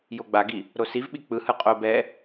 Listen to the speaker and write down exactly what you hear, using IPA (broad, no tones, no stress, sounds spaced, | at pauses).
j o ɡ͡b a ɡ i | ɾ o s i v ɓ i k͡p ɯ h ɯ qʼ o b ɛ